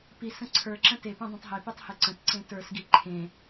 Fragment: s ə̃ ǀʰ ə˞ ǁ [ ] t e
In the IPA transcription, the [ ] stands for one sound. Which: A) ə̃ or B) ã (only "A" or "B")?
A